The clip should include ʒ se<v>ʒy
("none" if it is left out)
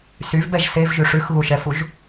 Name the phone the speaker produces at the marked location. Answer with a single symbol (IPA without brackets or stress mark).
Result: v